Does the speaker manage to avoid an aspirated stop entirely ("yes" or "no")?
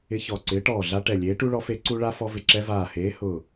yes